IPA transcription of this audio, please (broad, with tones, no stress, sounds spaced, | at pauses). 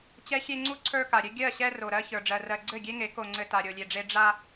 t͡ɕ ɛ˦ xʲ e˦ ŋ͡ǀ u˦ ǀʰ ə˞˦ k a˨ ɾʲ ɘ˦ ɡʲ ɜ˦˨ ɕ ɛ˦ r o˨ ɾ ɜ˦ ç ə˞˨ ɖ͡ʐ ɜ˨ r ɜ˨ ɡ͡ǀ ɘ˦˨ ɡʲ e˦ ŋ e˨˦ k o˨ ŋ͡ǀ ɘ˨ t a˨ ɾʲ o˨ lʲ e˨ ɖ͡ʐ e˦ ɖ͡ʐ a˦